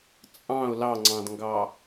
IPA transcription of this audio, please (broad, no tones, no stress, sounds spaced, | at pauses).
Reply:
t͡sʼ ɑ̃ ʊ̯ l ɑ ŋ͡ǀ ɑ̃ d ŋ ɡ ɑ